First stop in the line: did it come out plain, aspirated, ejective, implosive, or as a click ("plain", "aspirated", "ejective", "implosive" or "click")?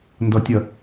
plain